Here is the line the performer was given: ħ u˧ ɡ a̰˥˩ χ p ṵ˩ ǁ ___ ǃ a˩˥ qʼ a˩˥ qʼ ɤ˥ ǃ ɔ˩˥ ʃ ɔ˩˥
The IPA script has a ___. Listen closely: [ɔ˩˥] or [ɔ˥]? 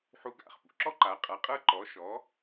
ɔ˥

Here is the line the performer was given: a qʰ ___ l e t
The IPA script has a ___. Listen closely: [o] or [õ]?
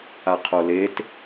o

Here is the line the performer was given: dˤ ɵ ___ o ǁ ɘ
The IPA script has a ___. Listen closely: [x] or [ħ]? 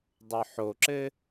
ħ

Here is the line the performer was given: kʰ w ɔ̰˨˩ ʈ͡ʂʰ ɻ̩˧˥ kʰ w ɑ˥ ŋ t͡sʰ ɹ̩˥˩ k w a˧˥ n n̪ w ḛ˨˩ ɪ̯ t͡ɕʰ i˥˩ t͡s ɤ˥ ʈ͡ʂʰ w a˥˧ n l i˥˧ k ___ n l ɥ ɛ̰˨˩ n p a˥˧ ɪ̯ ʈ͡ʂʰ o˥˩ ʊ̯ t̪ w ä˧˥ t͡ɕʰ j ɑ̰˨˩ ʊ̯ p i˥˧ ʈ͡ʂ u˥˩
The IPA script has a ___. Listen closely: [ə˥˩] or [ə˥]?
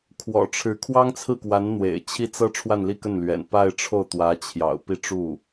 ə˥˩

